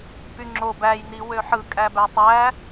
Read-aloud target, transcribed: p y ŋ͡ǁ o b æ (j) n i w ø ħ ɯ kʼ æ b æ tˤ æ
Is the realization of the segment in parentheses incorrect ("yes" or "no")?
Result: no